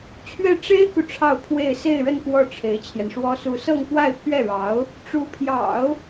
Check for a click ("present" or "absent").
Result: absent